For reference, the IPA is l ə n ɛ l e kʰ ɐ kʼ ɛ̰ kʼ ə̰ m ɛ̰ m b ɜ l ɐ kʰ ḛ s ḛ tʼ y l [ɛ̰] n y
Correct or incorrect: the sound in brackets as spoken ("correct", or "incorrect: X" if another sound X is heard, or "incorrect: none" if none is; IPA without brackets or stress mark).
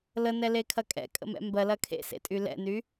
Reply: correct